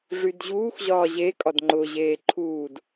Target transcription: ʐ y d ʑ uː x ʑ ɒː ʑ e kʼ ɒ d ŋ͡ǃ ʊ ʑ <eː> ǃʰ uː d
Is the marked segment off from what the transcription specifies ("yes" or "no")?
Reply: no